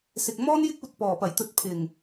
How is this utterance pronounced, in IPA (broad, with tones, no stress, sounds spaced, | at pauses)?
s ɪ˨ k̚ m ɔː˥ n j ɪ˥ k̚ uː˧ t̚ p ɔː˨˩ p ɐ˨˩ j t̪ ɵ˨˥ t̚ pʰ ɪ˨˩ ŋ